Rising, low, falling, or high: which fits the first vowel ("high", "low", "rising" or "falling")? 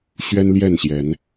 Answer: high